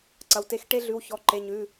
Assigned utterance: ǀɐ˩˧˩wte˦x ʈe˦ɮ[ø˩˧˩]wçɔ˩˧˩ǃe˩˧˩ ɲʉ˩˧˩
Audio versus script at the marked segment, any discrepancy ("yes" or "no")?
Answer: yes